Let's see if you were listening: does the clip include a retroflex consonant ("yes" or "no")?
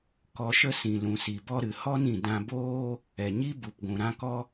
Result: no